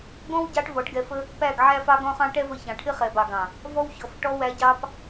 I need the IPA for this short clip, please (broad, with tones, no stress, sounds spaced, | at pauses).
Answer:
ɡ ɔ̃˦ w ɟ ɑ˧ ʈ v ɔ˨˦ ʈ ɡ ɛ˧ f ə˦ | p æ˦˨ ɡ ʕ æ˦ f ɑ˦ ɡ ɔ̃˦ χ ɑ̃˦ ʈ ɛ˦ v ə˧ ç ɑ̃˨ ʈʰ ɪ˦ χ ɛ˨ b ɑ˨ ɡ ɑ̃˨ | v ɔ˦ w ç ɔ˨˦ f ʈ ɔ˦ w æ˦ ɟ ɑ˦ p